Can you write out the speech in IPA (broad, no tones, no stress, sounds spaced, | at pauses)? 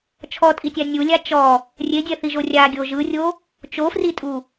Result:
t͡ʃʰ ɔ tʼ i tʲ a nʲ u lʲ a t͡ʃ ɔ | rʲ e dʲ ɛ θ i ʒ o rʲ a ɡʲ o ʒ ɯ rʲ o | t͡ʃ o f r i tʼ u